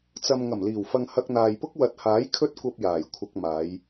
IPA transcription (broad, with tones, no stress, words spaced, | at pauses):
t͡sɐ˨m ŋɐ˨˩mliː˨˩wfɐ˨ŋ hɐ˧k̚n̪aː˨jpʊ˥k̚ wɐ˨t̚haː˨˥j kʰɵ˧t̚kʷɐ˨p̚ jaː˨˩jkʷʰɐ˧k̚ maː˨˧j